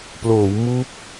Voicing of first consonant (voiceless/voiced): voiceless